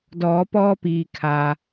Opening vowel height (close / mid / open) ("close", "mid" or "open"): mid